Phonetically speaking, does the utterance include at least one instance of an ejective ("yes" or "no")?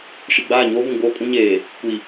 yes